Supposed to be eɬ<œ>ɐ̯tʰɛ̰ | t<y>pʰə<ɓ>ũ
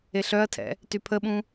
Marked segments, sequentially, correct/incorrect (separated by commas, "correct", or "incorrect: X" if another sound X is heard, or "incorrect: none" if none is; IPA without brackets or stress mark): correct, correct, correct